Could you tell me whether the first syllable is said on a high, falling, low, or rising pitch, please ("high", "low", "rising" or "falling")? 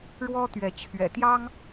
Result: high